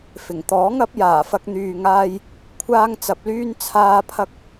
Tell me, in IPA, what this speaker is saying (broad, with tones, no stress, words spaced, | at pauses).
fɪ˨˩ŋt̪ɔː˨˥ŋɐ˨˥p̚ jaː˨˩fɐ˧k̚n̪yː˨ŋaː˧j | kʷʰaː˥ŋt͡sɐ˧p̚lyː˥n t͡sʰaː˧pʰɐ˧k̚